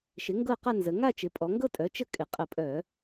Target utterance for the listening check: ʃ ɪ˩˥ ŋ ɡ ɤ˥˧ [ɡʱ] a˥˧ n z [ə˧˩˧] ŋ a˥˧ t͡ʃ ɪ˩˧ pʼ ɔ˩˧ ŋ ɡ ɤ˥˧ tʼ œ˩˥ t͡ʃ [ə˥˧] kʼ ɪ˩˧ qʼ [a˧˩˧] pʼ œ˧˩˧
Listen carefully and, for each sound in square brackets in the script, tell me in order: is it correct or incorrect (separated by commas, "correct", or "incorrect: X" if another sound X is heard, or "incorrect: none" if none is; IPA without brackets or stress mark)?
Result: incorrect: q, incorrect: ə˩˧, correct, incorrect: ə˧˩˧